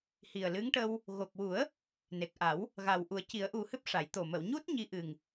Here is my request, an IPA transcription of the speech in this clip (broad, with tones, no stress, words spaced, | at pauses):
hi˨˩ə̯lɨ˧˥ŋʈə˧w | ɣo˨˩k̚wu˨˩˦ə̯ | ne˨˩k̚ʔa˨˩˦w | ɣa˨˩w ʔu˨˩˦ə̯ci˨˩˦ə̯ʔu˨˩hɨ˦˥p̚ ʂa˨˩˦jt̪o˨˩ mə˨˩˨wɲu˦˥t̚ ɲi˧ʔɨ˨˩ŋ